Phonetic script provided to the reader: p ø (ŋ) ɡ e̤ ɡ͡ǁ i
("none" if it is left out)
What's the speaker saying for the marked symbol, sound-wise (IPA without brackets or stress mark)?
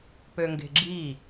ŋ